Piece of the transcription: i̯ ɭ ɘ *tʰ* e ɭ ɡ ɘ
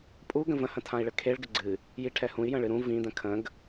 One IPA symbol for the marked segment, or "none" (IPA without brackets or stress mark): kʰ